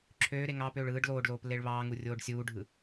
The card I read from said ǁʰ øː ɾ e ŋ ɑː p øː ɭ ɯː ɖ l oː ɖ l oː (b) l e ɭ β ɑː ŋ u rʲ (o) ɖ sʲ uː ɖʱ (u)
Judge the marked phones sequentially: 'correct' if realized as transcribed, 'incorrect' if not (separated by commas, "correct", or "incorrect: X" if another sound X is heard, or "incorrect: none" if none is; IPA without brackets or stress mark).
incorrect: p, incorrect: oː, incorrect: ɯ